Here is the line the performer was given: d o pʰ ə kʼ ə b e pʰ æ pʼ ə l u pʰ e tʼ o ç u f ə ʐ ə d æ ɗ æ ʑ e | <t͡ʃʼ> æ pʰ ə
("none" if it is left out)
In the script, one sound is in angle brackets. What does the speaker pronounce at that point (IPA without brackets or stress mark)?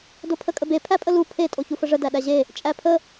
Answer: t͡ʃʼ